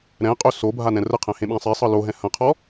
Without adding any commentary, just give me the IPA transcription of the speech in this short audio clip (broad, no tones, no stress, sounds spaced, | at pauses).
ɾ ɛ̃ qʼ ɵ s o bʱ a n ɛ̃ r ə qʰ ɛ̃ h ẽ ɓ æ̃ sˤ e sˤ ɤ l o ɦ ɛ̃ h ɐ̃ qʰ ɔ